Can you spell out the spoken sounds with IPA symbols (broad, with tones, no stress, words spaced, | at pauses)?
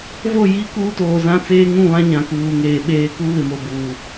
vo˦˨ji˦ kuː˦toː˨zã˦t͡seː˦ ŋũ˦˨βã˦ ɲã˨kuː˨ŋeː˨ɓeː˦ ku˦βɪ˨mo˨ buː˨